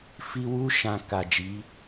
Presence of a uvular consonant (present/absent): absent